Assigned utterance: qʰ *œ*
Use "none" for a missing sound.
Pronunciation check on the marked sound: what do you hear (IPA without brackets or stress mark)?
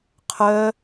œ